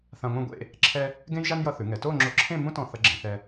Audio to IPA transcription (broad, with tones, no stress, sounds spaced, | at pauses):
θ ã˧ ŋʷ ɛ̃˥˧ ɡʷ ḛ˥˧ | ǁʰ ɛ˧ | ɡ ẽ˥ j ʒ a˥ n j ʌ˧ θ ʉ˩˧ ŋ ɛ˩˧ t o˥˧ ŋ͡ǁ o˧ ǁʰ ẽ˥˧ m ũ˥ t ɔ̃˧ θ ʌ˧ ɡ͡ǁ ẽ˩˧ θ ɛ˧